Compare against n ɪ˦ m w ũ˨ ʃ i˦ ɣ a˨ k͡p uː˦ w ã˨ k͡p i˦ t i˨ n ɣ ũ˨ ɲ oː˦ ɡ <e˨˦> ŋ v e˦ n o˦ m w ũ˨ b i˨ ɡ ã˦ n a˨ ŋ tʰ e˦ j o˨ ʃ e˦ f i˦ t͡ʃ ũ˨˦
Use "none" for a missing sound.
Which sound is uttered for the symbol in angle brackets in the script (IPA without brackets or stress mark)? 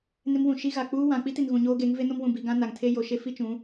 e˨˦